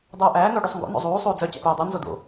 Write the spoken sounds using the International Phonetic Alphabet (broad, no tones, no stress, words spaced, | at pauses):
dˤuːʔæː ŋɵːɖusˤŋɡo̰ no̰zˤuː sˤuːd͡zœ t͡ɕæ̰puːdˤy nzodo̰